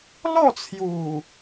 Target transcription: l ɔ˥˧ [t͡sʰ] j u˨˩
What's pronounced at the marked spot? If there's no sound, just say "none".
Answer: t͡sʰ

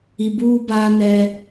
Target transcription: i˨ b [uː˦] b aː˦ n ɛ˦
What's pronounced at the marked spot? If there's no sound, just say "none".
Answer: uː˦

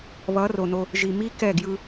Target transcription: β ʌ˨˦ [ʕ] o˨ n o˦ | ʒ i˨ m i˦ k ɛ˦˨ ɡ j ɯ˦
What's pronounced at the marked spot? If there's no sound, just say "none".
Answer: r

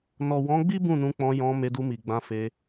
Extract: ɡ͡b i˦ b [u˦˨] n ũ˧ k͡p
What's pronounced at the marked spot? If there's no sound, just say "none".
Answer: ũ˦˨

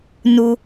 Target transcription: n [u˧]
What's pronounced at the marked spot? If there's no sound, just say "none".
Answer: u˧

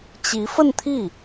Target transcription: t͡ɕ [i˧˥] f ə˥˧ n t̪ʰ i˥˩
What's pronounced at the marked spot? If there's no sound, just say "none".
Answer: i˧˥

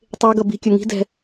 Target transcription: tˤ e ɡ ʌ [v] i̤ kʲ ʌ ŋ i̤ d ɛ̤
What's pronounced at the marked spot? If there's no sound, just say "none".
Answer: b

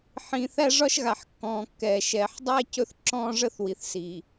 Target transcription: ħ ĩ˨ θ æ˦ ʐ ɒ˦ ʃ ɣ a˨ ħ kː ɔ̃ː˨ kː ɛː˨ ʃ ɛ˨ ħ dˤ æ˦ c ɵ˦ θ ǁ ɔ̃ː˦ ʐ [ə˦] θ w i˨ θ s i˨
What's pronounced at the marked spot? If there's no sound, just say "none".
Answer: ə˦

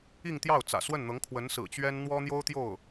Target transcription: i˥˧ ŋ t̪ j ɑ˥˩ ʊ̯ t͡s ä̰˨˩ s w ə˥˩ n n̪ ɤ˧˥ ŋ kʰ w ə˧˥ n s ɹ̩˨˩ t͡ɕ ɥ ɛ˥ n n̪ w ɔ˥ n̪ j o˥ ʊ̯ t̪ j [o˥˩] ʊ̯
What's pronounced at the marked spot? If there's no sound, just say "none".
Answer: o˥˩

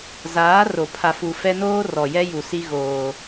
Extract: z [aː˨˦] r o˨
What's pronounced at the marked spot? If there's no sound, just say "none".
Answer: aː˨˦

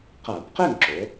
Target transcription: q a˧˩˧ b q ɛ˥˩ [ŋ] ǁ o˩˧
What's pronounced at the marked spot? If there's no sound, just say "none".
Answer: ŋ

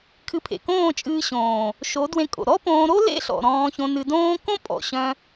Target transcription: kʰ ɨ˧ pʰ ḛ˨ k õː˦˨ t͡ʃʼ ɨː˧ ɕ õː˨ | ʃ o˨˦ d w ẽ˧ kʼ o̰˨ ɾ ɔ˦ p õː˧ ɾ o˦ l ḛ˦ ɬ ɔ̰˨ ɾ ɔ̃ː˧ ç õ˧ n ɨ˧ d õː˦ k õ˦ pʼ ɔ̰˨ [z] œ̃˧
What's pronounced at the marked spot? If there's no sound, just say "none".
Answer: ɕ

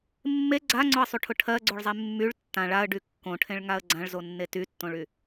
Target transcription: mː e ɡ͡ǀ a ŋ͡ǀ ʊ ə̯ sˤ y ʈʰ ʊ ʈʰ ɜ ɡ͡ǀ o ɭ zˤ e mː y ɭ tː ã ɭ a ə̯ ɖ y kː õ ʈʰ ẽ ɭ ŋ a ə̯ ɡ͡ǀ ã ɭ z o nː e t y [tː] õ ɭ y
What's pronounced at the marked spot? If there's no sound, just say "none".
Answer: tː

